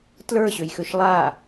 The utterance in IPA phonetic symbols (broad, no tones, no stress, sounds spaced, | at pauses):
t l ə˞ ɕ ø j x ø ʃ lˠ a